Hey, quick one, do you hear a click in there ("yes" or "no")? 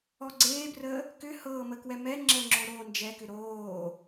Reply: yes